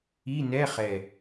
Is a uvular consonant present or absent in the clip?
present